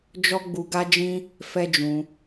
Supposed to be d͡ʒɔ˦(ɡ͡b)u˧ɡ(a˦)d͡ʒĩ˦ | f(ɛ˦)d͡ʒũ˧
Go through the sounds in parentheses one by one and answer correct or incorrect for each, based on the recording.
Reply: correct, correct, correct

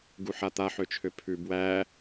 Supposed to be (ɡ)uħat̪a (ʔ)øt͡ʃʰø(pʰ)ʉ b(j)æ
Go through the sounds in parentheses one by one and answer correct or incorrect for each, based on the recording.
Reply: correct, incorrect, correct, incorrect

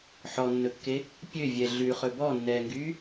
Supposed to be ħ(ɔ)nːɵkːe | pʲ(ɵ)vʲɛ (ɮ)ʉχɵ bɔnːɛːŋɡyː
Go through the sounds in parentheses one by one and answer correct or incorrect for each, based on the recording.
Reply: correct, incorrect, correct

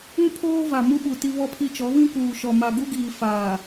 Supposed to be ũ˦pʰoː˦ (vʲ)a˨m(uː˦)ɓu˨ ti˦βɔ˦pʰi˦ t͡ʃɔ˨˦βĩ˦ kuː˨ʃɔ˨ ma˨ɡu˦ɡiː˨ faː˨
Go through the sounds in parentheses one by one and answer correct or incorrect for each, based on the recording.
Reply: incorrect, incorrect

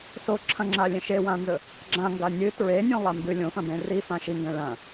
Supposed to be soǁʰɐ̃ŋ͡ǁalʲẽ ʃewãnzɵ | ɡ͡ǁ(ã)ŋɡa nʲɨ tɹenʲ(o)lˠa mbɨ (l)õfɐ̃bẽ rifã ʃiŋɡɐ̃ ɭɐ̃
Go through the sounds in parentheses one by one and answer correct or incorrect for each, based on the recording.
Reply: correct, incorrect, incorrect

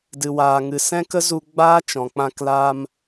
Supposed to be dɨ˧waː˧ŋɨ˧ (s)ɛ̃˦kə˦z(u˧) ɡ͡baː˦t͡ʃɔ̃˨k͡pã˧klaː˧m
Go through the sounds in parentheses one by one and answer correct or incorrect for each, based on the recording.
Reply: correct, correct

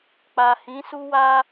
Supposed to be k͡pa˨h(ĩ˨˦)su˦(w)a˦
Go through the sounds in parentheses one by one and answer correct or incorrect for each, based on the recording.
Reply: correct, correct

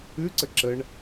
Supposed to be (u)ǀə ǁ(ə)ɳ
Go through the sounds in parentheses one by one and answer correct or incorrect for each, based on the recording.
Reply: incorrect, correct

